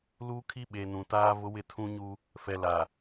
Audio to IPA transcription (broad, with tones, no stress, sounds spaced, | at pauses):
l uː˦ kʰ i˦ ɓ e˨ n ũ˨ t aː˦ v ʊ˦ w ɪ˦˨ tʰ ũ˦ ɲ u˦ | f ɛ˨ l a˨